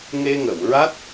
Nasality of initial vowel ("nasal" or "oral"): oral